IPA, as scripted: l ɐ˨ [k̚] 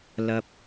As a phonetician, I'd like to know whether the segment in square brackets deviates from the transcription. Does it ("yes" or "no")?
yes